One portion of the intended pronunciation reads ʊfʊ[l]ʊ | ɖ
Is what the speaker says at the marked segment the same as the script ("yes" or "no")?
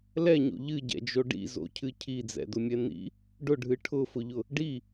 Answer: no